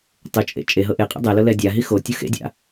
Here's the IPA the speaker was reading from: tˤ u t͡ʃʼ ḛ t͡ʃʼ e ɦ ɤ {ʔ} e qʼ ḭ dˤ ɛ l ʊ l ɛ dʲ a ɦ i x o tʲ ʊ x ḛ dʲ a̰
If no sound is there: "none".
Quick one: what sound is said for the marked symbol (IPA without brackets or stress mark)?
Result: ʔ